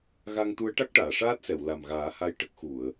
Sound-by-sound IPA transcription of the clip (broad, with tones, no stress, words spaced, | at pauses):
ɣa˧ŋt̪u˧˥ə̯ ʈa˦˥k̚ʈaː˨˩˨ʂaː˦˥t̚sɛ˨˩˨w la˨˩mɣaː˨˩˦ha˧j ʈə˦˥k̚ xu˨˩˨ə̯